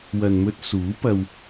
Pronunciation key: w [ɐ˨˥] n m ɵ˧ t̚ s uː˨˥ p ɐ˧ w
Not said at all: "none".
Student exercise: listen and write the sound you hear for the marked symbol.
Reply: ɐ˨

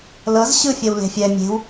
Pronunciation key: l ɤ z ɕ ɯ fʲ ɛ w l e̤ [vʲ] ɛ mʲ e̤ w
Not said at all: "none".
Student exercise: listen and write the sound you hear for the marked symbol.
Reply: fʲ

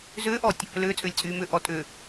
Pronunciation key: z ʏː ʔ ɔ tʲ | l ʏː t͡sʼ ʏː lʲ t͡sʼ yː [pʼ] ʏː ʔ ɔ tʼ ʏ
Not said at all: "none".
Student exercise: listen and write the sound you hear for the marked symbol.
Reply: m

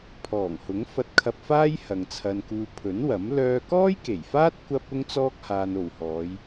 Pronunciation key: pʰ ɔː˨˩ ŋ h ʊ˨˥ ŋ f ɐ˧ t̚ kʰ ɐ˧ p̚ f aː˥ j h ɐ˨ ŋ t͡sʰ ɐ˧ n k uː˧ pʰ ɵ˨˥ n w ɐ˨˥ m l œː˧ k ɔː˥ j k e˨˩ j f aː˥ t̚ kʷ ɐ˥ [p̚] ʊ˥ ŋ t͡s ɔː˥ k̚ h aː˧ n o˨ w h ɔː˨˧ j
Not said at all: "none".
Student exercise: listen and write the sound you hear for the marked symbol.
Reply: p̚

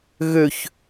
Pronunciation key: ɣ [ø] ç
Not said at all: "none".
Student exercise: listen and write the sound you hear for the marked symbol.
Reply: ø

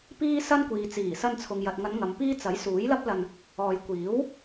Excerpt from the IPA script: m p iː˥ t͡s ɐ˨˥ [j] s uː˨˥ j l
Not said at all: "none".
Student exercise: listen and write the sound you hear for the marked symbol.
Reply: j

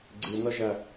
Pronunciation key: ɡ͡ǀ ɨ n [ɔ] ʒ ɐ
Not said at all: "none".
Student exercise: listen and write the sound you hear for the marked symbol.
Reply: ɔ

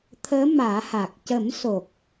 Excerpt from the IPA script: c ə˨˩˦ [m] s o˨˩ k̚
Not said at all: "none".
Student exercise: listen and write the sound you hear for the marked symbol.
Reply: m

